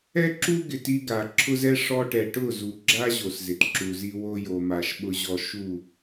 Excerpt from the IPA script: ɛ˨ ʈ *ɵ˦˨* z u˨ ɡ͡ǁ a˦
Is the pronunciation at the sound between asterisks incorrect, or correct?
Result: incorrect